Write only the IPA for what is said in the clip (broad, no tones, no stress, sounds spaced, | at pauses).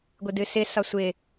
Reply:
ɡʷ ɪ d ɨ s ɪ s ɒ sʷ ɪ